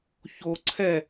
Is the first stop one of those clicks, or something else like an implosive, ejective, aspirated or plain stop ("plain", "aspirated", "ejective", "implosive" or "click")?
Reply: click